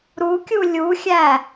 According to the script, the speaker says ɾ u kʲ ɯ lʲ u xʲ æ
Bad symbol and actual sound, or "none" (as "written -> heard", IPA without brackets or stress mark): ɯ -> u